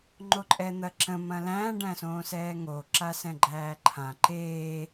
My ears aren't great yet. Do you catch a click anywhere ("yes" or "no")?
yes